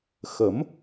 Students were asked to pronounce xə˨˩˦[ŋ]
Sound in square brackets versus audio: incorrect: m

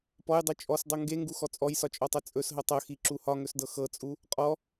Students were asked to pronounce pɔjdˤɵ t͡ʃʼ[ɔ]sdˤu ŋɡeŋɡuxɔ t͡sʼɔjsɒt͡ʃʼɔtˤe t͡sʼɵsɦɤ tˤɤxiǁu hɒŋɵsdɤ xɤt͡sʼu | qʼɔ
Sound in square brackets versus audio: correct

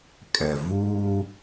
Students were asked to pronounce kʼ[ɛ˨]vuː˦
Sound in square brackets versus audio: correct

